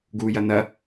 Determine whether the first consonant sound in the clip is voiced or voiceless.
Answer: voiced